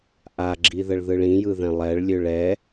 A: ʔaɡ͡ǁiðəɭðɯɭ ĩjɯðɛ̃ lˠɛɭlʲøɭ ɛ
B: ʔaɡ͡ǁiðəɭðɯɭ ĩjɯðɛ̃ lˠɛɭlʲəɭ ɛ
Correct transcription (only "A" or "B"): A